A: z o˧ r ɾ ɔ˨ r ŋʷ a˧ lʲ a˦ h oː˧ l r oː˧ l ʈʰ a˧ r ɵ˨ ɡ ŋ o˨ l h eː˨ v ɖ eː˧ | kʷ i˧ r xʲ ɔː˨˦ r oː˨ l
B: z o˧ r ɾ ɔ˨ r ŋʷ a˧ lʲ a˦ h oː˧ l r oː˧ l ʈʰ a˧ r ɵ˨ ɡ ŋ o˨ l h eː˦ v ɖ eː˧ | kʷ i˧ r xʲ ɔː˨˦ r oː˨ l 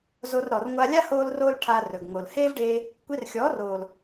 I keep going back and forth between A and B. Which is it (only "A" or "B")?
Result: B